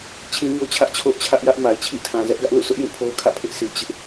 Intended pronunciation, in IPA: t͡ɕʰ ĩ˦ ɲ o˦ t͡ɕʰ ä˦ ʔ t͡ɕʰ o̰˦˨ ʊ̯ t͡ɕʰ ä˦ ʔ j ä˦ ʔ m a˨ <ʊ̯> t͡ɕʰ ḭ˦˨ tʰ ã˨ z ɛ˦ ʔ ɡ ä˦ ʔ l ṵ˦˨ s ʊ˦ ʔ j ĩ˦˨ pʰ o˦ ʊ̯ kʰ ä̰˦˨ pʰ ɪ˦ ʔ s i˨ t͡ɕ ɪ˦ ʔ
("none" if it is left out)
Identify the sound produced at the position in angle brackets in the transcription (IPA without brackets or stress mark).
ɪ̯